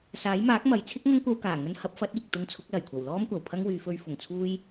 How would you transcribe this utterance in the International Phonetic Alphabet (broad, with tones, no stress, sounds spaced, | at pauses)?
s aː˨˥ j m aː˨˥ k̚ m ɐ˨ j t͡sʰ ɪ˥ k̚ ŋ ɐ˥ ŋ kʷ ɐ˧ w k aː˨˩ ŋ ɵ˧ n h ɐ˨˥ p̚ f ɐ˨˥ t̚ iː˨ k̚ t̪ ʊ˧ ŋ t͡sʰ ʊ˨˥ k̚ l ɐ˨˩ j kʷʰ ɐ˨˩ w l ɔː˥ m kʷ ɐ˨ w pʰ ɐ˥ ŋ w yː˨˧ f ɵ˧ ɥ f ʊ˨˩ ŋ t͡sʰ uː˥ j